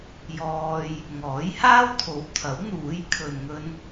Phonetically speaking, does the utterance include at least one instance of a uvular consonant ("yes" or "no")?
no